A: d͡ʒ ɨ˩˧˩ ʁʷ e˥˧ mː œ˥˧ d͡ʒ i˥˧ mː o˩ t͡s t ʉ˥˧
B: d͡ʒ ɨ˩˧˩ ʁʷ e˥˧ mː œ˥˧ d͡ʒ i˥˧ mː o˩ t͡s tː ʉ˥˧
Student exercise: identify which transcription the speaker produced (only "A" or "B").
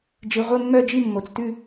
A